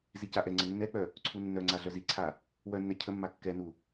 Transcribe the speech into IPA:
z i c a ʔ ɛ ŋ͡ǀ ə nː ɛ k͡p œ | ǀʰ u nː œ ŋ͡ǀ a ɮ œ z i ǀʰ a | w œ nː ɛ cʰ ə mː a kː ɛ n u

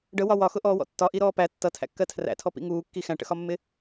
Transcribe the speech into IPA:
ɖ ə w ɒ w ɒ x ʊ ʔ ɔː w ɔ̰ tː ɒ ʔ i ɾ ɔː p æ tː ʌ tʰ æ̰ kː ɜ tʰ r æ̰ tʰ ɔ p ḭ ŋ uː kː i x æ̃ ʈ ə̰ x ɒ mː ɪ

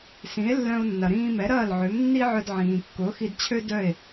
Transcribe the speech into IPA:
s ĩ˩˥ e̯ lː œ̃˧ o̯ nː ɐ˩ ɾ ĩː˧ m ɛ˩˥ ɾ ɐː˥˩ l ʕ ø˩˥ m nː i˥ ʕ œ˧ d ʕ ĩː˩ kː ʊː˩˥ x i˧ d t͡ɕʰ ø˥ d œ˥˩ e̯

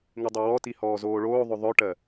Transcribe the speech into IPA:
ŋ ɪ dˤ e w ɔ t i h ɔː z oː ɭ oː ðˤ ɵ ðˤ œ ʈ ɜ

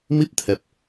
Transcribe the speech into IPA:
m i˦˥ p̚ t̪ʰ ɛ˨˩ p̚

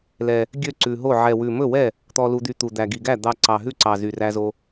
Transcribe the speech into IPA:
l ɛ˨˩ | ɡʲ ø˥˩ ǀ ʉ˨˩ ɦ o˥˩ ʕ ɛ˨˩ w ʉ˨˩ m ɵ˥˩ w ɛ˥˩ | t̪ ɔ˧ l u˧ d̪ y˧ t̪ u˨˩ d̪ æ˨˩ ɡ i˨˩ ɡ æ˥˩ d̪ ɑ˧ ǀ ɑ˨˩ ɦ ʉ˥˩ ǀ ɑ˨˩ z y˨˩ r æ˧ z o˧

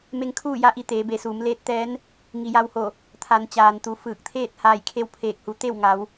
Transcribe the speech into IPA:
m e˧ ŋ kʰ uː˥˨ j a˧˥ ʔ i˩˧ t̪ eː˩˧ b e˩˧ s uː˩˧ m l eː˧˥ t̚ t̪ ɛː˧˥ n | ŋ i˩ j a˧ w h o˧˩ | t̪ʰ a˩˧ n t͡ɕ aː˩ n t̪ u˩˧ f ɯː˧˩ k̚ t̪ʰ eː˥˨ t̚ h aː˧˩ j kʰ e˧ w pʰ eː˧˩ k̚ h u˩˧ t̪ e˥˨ w ŋ a˩˧ w

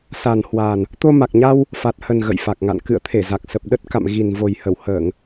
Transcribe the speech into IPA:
s a˨˩ n h w a˨˩ n | t̪ o˧ m a˨˩ k̚ ɲ a˧ w | f a˨˩ t̚ h ə˨˩ n ɣ ə̰˧˨ j f a˨˩ k̚ ŋ a̰˧˨ n k ɨ̰˧˨ ə̯ t̪ʰ e˧˩ z a˨˩ k̚ s ə˨˩ p̚ ɗ ə˦˥ t̚ k a̰˧˨ m ɣ i˨˩ n v o˨˩ j h ə˧˩ w h əː˧˩˨ ŋ

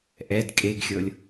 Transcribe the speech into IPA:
ʔ ɛ d kʼ e ɡ xʲ ɤ lʲ

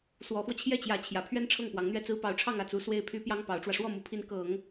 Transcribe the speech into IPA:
s w ɔ˧˥ x w ɔ˧ t͡ɕʰ j ɛ˥˩ t͡ɕ j ä˧˥ t͡ɕʰ j ä˨˩ pʰ ɥ ɛ˥ n ʈ͡ʂʰ ɤ˥˩ ŋ p w ɑ˧˥ ŋ n̪ ɥ ɛ˥ t͡s ɹ̩˥ p ɑ˧˥ ʊ̯ ʈ͡ʂʰ ɑ˥˧ ŋ ä˥˩ t͡s u˧˥ s w e˥˩ ɪ̯ pʰ y˥ p j ɑ˥ ŋ p ɑ˧˥ ʊ̯ ʈ͡ʂ w ä˧ ʂ w ɔ˥˩ m u˧˥ pʰ i˧˥ n k ɤ˨˩˦ ŋ

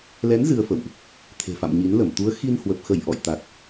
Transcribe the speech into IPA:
l ɛ˨˦ n z ɨ˧ ə̯ f ə̰˧˨ w ʔ | t̪ʰ e̤˨˩ f a̰˧˨ m ɲ i˨˦ n l ə˧˩ m t̪ u˨˦ ə̯ x i˧ n h w ə˨˩ p̚ x ə˧˩ j ʔ ɔ̰˧˨ j t̪ a˨˩ t̚

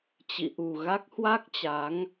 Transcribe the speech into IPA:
t͡ɕ ḭ˧˨ ʔ u˨˩ ɣ a˦˥ k̚ h w a˦˥ k̚ t͡ɕ a˨˦ ŋ

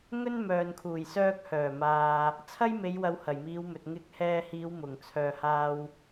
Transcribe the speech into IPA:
ŋ ɵ˥ n m œː˨ n kʰ uː˨˩ j s œː˧ k̚ h œː˨˩ m aː˨ | t͡sʰ ɐ˥ j m e˨˧ j w ɐ˨˧ w h ɐ˨˩ j m iː˨˧ w m ɵ˨ t̚ ŋ ɪ˧ k̚ h ɛː˧ h iː˨˧ w m ʊ˨˩ ŋ t͡sʰ œː˧ h aː˥ w

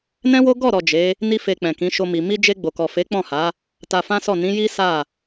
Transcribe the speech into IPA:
n ɛ̃˦ w o˦ ɡ ɔ˦˨ ɾ ɔ˨ d͡ʒ e˨˦ | n i˦ f e˧ k͡p ɛ̃˨ k ĩ˨˦ ʃ o˧ m i˨ m i˧ d͡ʒ e˧ ɡ͡b o˨ k ɔ˨ f e˨˦ k͡p ɔ̃˦˨ h a˨˦ | t a˧ f ã˦ s ɔ˦˨ n ĩ˨˦ j i˦ s a˦˨

